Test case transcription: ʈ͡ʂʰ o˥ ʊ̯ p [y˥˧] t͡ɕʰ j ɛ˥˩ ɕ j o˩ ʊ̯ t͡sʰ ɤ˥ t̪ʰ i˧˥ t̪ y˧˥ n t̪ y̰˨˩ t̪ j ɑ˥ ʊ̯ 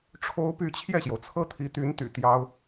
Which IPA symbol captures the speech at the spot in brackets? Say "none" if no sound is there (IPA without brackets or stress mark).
y˥˧